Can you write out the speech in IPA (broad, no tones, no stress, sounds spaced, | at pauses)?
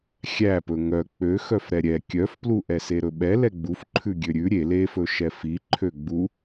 xʲ æ p ɵ ŋ œ k͡p ø x œ f ɾ ɛ ɾʲ ɛ kʲ œ f p l u ʔ ɛ s e ɾ ɵ ɓ ɛ l ɛ ɡ͡b u f ǃʰ ʉ ɡʲ ø ɾʲ ʉ ɾʲ e l e f ɵ ʃ ɛ f i ǃʰ ø ɡ͡b u